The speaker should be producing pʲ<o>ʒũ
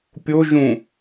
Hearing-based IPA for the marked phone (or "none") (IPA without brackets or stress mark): o